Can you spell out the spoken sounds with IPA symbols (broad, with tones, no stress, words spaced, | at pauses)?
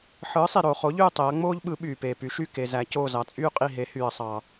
ħɯː˨˥sˤi˨ ɾoː˨χo˨˥ʎyː˦˨ tˤe˨˥ɐ̯ŋ͡moː˥ʎɓɯ˨˥ ɓyː˨peː˨py˨˥ʃy˦˨ ke˨zæ˨˥ coː˦˨zɑ˨˥t͡sʼyː˥qʼi˦˨ ɦe˨˥hyː˨ɐ̯sˤɑ˨